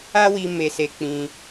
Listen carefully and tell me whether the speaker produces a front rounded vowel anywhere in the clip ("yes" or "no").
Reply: no